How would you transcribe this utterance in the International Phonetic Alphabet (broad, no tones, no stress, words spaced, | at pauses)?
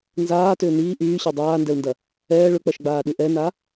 nzaːtʏː niː ʔyːɕɛ dˤaːndɛu̯ndɐ | ɛː ɭʏk͡pɐʃɡ͡baːɗy ʔɛna